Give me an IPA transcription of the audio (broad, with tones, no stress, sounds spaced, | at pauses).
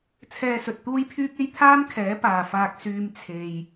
t͡sʰ ɛː˧ s ɵ˨ t̚ t̪ uː˥ j pʰ yː˥ k̚ e˥ j t̪ʰ aː˥ m kʰ ɛː˨˥ p aː˨ f aː˧ k̚ s yː˧ m t͡sʰ e˨ j